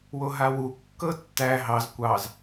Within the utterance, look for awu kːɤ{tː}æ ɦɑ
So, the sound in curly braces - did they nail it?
yes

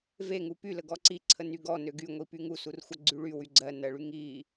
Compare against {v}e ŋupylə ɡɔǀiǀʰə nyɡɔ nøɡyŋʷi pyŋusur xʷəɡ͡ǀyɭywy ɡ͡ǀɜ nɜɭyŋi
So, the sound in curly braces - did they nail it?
yes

